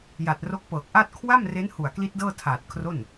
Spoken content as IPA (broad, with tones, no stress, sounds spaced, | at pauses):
j a˨˩ t̚ r o˦˥ k̚ p ɤː˨˩ k̚ ʔ a˥˩ t̚ kʰ w a˥˩ m r e˦˥ n h u˨˩ a̯ k l i˦˥ t̚ d ɤː˥˩ tʰ aː˨˩ t̚ kʰ r o˥˩ n